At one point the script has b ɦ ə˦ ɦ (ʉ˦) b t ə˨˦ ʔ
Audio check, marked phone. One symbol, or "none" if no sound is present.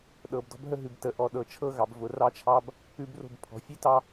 ʉ˨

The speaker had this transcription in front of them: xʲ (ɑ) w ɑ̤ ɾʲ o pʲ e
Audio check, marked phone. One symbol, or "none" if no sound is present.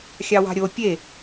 ɑ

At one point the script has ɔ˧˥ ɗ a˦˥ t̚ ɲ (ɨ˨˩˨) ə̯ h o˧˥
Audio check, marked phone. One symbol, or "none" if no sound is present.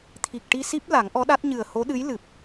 ɨ˨˩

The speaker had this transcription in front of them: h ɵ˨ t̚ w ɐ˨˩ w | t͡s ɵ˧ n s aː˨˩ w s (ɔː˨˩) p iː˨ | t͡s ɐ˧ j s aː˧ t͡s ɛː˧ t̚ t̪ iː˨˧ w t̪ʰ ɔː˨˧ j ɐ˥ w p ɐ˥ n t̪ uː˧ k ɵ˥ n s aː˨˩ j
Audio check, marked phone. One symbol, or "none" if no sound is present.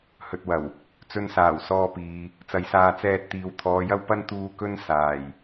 ɔː˧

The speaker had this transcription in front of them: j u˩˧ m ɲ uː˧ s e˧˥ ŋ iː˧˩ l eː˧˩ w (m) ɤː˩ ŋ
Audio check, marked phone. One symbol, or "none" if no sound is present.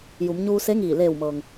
m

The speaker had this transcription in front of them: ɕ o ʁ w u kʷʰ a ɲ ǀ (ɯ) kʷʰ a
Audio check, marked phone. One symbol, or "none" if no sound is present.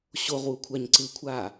ɯ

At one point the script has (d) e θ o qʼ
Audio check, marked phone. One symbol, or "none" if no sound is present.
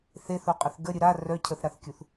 θ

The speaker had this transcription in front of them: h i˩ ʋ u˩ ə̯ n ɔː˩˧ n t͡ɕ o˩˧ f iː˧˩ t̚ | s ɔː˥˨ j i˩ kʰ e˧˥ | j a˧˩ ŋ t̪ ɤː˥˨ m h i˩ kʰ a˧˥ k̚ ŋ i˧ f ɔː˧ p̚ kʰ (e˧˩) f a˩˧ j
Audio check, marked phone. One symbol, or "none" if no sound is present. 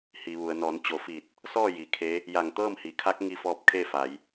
e˥˨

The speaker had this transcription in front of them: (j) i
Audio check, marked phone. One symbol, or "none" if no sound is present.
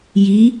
j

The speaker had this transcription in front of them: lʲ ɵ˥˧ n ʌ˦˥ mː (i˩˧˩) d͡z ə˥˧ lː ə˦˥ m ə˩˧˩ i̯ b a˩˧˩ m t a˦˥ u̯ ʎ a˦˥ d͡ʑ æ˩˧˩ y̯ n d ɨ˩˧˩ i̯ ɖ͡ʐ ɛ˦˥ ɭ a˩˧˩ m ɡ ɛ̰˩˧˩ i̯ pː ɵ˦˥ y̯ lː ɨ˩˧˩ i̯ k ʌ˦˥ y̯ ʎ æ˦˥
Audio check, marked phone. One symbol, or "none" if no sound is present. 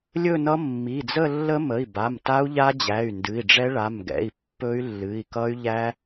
i˩˧˩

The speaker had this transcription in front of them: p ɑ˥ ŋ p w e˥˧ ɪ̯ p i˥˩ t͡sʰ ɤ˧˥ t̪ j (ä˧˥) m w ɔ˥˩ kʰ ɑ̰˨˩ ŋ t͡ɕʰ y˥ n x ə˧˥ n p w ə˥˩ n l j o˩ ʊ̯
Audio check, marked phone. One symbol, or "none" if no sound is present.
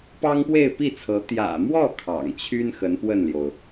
ä̰˨˩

